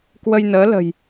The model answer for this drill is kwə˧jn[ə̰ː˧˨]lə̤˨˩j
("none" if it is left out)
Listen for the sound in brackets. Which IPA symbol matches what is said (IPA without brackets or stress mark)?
əː˨˦